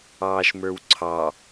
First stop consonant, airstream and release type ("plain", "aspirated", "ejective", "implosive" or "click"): click